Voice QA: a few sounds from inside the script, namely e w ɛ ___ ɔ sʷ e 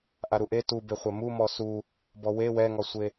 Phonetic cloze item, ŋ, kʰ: ŋ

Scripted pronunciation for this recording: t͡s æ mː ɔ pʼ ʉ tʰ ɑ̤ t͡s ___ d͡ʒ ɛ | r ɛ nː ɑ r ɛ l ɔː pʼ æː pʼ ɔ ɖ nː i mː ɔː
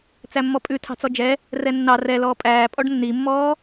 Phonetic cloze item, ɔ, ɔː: ɔ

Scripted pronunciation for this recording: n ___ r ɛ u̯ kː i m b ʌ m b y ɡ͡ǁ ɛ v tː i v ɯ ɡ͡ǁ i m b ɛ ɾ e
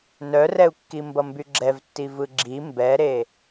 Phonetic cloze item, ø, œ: œ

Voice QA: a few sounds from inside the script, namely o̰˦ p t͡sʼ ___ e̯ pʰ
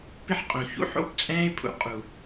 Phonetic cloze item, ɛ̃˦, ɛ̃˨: ɛ̃˦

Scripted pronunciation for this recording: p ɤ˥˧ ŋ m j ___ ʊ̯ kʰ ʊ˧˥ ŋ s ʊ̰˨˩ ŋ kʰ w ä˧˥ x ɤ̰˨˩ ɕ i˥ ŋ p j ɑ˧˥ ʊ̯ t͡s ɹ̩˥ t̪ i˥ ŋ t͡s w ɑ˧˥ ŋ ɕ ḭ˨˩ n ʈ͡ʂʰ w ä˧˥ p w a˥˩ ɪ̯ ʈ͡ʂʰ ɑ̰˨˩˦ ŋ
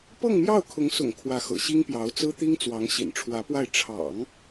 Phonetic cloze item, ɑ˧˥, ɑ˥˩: ɑ˥˩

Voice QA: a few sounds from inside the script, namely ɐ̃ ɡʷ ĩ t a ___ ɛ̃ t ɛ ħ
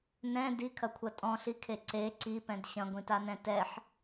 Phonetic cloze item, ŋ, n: n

